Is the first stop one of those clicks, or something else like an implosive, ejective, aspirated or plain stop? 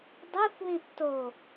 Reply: plain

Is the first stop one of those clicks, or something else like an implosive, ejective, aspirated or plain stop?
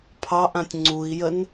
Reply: aspirated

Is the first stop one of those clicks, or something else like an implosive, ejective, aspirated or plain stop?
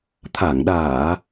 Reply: aspirated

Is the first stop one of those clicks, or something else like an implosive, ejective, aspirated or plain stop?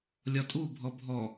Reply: ejective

